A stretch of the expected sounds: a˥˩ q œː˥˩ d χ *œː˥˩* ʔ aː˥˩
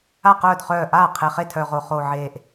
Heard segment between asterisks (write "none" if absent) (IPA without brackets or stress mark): œː˥˩